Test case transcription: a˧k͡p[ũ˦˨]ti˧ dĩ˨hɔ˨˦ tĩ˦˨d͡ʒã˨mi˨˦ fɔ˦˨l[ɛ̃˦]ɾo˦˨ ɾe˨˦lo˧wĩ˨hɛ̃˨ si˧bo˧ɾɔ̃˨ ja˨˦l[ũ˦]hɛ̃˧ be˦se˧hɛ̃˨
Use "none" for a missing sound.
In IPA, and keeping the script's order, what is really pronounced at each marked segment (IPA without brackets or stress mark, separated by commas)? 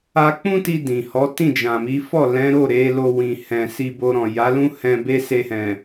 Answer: ũ˦, ɛ̃˨˦, ũ˦